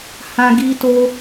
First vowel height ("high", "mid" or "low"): low